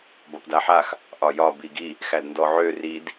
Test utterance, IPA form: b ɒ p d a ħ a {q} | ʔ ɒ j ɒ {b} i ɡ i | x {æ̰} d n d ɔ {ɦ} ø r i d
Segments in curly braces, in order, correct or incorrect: incorrect, correct, incorrect, incorrect

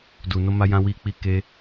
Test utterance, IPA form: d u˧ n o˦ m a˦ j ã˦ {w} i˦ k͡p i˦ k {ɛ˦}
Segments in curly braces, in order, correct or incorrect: correct, incorrect

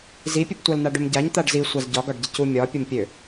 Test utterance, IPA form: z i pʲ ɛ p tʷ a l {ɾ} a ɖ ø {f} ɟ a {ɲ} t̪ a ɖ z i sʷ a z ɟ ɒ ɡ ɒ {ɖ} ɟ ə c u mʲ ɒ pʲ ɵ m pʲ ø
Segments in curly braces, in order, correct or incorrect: incorrect, incorrect, correct, correct

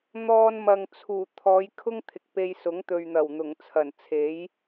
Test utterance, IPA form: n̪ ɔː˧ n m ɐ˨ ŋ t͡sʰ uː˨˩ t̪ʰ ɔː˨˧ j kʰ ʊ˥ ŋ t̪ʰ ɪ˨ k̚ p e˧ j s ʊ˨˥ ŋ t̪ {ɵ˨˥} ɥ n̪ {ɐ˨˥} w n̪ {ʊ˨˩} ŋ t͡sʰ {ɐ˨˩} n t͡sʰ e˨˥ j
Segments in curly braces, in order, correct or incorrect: incorrect, incorrect, correct, correct

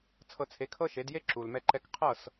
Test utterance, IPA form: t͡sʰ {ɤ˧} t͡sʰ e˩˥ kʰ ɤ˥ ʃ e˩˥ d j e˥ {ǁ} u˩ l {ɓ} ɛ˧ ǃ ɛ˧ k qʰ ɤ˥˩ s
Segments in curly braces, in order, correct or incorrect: correct, correct, incorrect

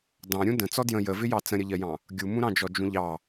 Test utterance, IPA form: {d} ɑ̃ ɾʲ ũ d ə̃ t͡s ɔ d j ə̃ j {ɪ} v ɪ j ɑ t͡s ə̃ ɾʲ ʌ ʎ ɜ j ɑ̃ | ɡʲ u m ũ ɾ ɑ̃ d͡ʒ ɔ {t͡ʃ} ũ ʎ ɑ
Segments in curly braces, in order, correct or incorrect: correct, incorrect, incorrect

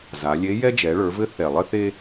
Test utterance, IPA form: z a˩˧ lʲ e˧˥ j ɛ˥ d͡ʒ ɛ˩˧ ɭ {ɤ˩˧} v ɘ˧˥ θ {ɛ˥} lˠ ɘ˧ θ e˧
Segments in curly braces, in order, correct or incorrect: incorrect, incorrect

